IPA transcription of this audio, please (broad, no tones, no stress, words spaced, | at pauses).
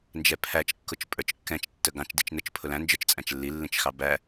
nd͡ʒɛpʰæt͡ʃ kːʊt͡ʃpʼə˞t͡ʃ kːɛ̃t͡ʃ tːəɡɑ̃t͡ʃ dit͡ʃnət͡ʃ pʰʊlæ̃ nd͡ʒə˞t͡ʃt͡sʼæ̃t͡ʃlːi lːĩt͡ʃxɑbæ